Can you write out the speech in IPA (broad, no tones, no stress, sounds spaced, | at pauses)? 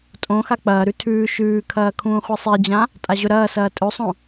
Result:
tʼ õ x a k͡p ɐː ɾ ʉ tʰ ʉː ʃ ʉː kʰ ɐː kʰ ũː χʷ i sˤ e d͡ʑ ã | tʼ a ʑ ɵ ɾ ɐː s ɐː tʼ ɵ sˤ õ